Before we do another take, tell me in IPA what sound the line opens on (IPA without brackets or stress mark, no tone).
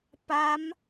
p